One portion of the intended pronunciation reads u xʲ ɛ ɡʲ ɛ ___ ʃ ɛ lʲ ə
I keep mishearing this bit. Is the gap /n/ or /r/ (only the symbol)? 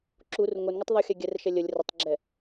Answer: r